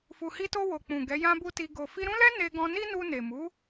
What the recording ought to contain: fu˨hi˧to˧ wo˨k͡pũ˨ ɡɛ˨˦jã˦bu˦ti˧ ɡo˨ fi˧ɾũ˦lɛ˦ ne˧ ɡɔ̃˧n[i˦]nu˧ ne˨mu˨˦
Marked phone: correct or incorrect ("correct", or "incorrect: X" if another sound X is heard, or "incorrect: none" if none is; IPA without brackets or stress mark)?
correct